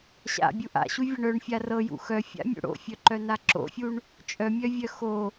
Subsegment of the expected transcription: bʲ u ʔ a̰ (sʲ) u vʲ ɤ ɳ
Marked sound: incorrect: ɕ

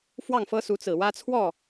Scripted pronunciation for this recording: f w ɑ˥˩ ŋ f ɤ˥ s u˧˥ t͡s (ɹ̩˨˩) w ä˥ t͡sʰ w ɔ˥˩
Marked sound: correct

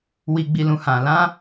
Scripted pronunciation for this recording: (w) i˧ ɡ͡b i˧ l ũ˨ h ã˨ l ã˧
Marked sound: correct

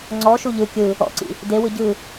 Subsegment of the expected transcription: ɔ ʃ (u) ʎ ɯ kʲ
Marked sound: correct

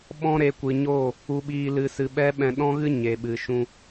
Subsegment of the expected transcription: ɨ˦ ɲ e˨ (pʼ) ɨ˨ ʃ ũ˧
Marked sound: incorrect: ɓ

